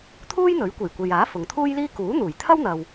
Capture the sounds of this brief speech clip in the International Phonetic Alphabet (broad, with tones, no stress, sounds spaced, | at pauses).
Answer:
t̪ʰ uː˥ j n̪ ɵ˨˥ ɥ kʷ e˨˩ j kʷ e˨ j aː˨˥ f ʊ˨ ŋ t̪ʰ uː˥ j l iː˥ k uː˨˥ n̪ uː˨˩ j t̪ʰ ɐ˥ w n̪ ɐ˨ w